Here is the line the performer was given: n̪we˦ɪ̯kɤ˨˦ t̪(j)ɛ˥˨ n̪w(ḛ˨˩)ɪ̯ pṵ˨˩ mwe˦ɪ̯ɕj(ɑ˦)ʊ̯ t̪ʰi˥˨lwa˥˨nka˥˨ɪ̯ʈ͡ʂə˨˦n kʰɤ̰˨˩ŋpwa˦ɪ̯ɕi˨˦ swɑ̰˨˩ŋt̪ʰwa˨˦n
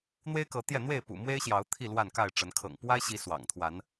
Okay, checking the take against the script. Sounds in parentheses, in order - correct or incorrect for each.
correct, incorrect: e˥˨, incorrect: ɑ˨˦

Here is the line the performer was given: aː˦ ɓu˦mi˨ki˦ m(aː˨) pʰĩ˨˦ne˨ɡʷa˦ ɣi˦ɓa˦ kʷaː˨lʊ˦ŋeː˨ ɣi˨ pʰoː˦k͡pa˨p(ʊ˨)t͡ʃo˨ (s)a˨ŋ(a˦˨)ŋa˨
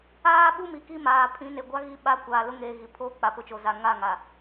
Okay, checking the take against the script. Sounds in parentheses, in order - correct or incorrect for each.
correct, correct, incorrect: z, correct

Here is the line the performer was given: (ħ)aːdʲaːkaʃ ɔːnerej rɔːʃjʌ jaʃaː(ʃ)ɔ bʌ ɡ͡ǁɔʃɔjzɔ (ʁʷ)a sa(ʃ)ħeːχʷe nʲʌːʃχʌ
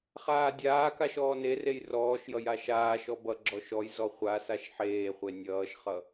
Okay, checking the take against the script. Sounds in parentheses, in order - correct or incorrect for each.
incorrect: χ, correct, incorrect: χʷ, correct

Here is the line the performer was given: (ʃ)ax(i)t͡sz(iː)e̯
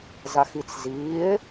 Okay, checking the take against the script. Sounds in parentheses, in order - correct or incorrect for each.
incorrect: z, correct, correct

